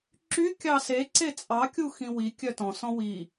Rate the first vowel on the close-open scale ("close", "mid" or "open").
close